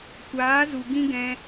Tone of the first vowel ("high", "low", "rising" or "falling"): rising